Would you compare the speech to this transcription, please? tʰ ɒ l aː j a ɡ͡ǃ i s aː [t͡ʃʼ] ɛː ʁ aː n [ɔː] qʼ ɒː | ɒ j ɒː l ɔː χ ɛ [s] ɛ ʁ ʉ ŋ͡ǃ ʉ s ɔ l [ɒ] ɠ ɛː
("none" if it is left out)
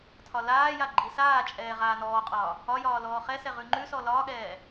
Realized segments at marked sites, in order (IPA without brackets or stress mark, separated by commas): t͡ʃʼ, ɔː, s, ɒː